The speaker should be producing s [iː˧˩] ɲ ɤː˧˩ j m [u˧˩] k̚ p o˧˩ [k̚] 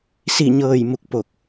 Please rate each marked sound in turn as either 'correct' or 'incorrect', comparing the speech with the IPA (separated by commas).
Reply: incorrect, correct, correct